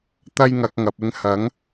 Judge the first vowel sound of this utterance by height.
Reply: low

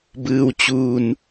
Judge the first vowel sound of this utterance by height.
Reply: high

